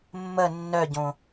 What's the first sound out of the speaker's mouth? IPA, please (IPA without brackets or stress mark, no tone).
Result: mː